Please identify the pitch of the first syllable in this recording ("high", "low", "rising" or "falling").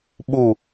low